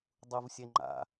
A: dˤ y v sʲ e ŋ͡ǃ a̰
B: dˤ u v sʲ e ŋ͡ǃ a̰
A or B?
B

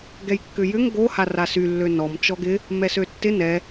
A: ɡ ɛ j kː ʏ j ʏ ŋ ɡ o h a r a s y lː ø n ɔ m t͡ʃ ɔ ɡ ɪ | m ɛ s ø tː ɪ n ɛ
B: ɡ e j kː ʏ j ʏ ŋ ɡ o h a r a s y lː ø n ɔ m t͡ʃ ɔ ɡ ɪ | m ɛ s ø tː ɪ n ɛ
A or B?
A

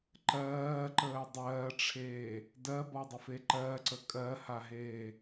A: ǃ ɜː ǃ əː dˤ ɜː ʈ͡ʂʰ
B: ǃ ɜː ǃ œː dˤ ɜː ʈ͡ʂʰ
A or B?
A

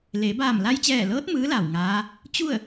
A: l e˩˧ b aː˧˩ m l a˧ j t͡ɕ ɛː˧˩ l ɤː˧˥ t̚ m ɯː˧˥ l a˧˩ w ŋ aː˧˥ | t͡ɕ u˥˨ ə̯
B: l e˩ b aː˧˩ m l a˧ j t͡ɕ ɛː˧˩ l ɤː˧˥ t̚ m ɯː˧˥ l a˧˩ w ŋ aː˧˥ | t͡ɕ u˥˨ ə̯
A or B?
A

